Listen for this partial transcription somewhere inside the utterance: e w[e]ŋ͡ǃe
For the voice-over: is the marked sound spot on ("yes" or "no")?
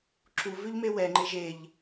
no